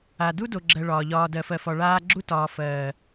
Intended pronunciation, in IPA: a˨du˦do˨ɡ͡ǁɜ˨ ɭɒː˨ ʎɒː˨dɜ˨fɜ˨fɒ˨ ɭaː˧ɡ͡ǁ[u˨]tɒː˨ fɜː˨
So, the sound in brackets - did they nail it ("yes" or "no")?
no